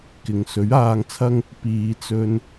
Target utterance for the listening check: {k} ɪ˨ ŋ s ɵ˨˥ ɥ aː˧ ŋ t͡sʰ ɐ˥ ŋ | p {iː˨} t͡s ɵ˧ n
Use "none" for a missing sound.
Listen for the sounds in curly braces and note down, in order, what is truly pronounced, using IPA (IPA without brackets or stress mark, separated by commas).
k, iː˨